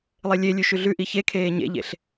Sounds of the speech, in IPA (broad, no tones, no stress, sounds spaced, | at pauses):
lˠ e lʲ e lʲ ʉ ʃ ʉ ɮ ʉ ʔ i ç e kʰ eː ɲ ḛ ʎ ḛ ɬ